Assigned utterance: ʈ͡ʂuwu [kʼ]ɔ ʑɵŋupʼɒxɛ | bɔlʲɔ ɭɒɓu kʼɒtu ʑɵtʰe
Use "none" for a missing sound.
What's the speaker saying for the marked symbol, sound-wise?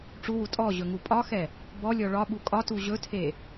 tʼ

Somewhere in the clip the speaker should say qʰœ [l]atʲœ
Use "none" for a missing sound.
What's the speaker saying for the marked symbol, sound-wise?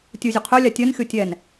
lʲ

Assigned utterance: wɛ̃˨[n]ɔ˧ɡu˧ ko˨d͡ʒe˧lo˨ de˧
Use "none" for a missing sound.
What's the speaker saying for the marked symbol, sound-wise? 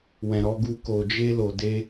ɾ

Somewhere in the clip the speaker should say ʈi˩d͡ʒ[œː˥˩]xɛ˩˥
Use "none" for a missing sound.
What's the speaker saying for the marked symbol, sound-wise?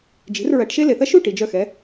œ˥˩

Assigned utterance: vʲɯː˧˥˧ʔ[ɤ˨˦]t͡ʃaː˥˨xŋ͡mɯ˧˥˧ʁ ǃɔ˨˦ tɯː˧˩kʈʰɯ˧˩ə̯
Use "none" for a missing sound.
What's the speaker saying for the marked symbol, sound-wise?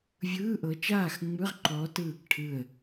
ɤ˨˦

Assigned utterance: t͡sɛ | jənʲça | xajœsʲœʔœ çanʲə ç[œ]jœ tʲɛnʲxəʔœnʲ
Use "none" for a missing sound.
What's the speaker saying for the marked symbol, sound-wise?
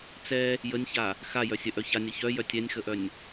œ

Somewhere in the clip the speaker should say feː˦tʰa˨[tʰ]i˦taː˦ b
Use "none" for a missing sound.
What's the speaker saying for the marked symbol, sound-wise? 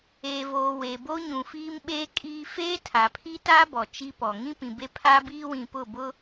pʰ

